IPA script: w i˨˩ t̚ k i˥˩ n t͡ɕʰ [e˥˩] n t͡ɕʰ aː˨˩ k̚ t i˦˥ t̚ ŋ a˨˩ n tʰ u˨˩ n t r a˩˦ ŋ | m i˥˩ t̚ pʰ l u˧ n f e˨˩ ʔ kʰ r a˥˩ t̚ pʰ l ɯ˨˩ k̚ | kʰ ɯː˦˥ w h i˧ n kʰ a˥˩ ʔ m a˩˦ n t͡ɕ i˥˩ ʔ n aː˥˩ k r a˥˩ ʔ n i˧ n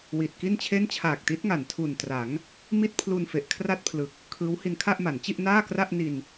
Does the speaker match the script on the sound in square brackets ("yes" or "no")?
yes